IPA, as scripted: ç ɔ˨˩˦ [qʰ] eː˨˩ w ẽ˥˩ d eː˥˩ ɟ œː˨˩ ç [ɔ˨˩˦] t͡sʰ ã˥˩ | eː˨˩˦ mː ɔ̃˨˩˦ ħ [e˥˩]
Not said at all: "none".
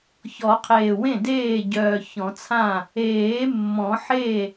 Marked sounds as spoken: qʰ, ɔ̃˨˩˦, e˥˩

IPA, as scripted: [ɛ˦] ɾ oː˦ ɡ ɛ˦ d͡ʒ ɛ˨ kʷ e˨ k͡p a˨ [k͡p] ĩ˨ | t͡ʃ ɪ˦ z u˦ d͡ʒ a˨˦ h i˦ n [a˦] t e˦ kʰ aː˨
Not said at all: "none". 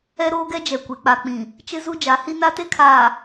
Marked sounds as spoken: ɛ˦, k͡p, a˦

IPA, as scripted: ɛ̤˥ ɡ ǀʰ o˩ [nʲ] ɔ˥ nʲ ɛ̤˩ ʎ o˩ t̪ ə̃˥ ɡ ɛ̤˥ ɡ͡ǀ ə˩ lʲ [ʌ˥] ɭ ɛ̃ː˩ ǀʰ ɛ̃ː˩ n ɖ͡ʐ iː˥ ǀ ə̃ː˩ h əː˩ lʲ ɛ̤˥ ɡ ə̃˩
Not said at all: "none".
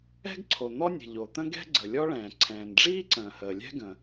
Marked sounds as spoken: n̪, ɔ˥

